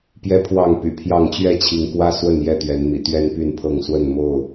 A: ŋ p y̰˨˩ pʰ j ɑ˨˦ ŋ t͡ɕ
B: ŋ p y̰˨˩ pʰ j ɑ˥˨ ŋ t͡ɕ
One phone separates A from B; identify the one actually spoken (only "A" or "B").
B